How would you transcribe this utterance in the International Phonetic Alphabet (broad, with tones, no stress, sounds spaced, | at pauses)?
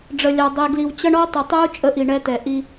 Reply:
ɖ͡ʐ ə˨ lʲ ɑ˨ dˤ i˨ ɡ l i˨ w t͡ɕ ʌ˦ ɳ ɔ˦ tˤ ʊ˨ tˤ uː˦ t͡ʃʼ ə˦ ʔ i˨ ɳ ɛ˦ t ɛ˨ ʔ i˦